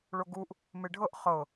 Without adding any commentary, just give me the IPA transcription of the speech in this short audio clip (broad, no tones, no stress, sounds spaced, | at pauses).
ɭ o ɡ u ʔ | m e ɖʱ ɤ ʔ χ ɤ